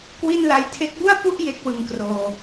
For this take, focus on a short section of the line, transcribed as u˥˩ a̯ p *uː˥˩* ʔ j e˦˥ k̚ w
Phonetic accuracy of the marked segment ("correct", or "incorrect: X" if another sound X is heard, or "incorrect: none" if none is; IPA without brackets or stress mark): incorrect: u˥˩